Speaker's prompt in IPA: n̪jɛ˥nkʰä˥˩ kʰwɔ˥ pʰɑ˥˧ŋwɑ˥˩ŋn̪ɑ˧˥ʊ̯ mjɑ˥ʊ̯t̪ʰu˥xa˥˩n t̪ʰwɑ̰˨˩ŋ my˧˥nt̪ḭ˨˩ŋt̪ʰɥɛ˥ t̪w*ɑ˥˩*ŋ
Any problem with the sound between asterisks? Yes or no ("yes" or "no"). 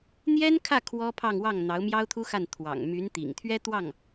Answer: no